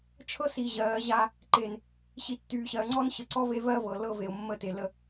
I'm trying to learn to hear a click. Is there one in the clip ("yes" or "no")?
yes